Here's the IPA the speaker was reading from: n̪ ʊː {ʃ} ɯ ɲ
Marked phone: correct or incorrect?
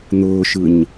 correct